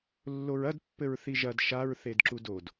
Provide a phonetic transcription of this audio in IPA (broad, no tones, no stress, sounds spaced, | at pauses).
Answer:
lː o ɹ ɐ d pː ɘ ɹ θ i ʒ ɐ d ʃ a ɹ θ e d ǁ u d o d